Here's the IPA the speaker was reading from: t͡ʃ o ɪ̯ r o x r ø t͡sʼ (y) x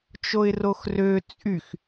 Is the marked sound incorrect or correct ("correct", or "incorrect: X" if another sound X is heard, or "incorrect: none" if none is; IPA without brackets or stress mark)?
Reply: correct